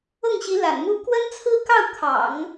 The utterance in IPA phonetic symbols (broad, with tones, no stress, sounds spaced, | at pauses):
ɤ˥˩ ŋ ɕ i˧˥ l a̰˨˩ n m u˥ k w ə˥ n t͡sʰ ɹ̩˥ k ɑ˥˩ ʊ̯ kʰ ɑ̰˨˩˦ ŋ